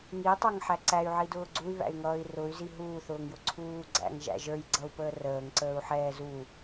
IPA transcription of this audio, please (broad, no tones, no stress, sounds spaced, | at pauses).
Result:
ŋ i tˤ ə˞ ŋ ħ æ ǀ æ y̯ ʕ i d ʊː ɡ͡ǀ u y̯ β æ̰ y̯ ŋ ʌː i̯ r ʊ y̯ z i ɦ uː θ ʊː ŋ j ʊ ǀʰ uː ɡ͡ǀ æ̰ ŋ ʒ æ̰ ʒ ə˞ j ɡ͡ǀ ʌ u̯ p əː r əː ŋ ǀ əː u̯ ħ ɛː z u